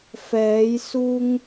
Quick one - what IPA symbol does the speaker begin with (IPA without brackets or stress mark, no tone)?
f